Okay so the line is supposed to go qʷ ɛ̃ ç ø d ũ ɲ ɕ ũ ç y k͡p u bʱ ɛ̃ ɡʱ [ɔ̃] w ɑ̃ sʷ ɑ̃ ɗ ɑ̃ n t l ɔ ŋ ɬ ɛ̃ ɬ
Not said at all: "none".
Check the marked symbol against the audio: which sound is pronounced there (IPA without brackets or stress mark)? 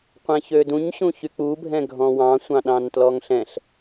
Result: ɔ̃